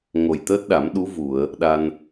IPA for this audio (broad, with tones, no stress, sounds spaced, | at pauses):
ŋ o˨˩ j t̪ əː˦˥ t̚ ɗ a˨˩˦ m ɗ u˧˥ v u˨˩˨ ə̯ | ɗ a˧ n